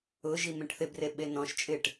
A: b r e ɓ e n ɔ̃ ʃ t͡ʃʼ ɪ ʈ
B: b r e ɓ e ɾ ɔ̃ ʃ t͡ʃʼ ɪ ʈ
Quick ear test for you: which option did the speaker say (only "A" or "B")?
A